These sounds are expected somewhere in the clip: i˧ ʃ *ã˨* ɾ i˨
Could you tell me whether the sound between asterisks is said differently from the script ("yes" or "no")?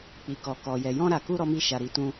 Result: yes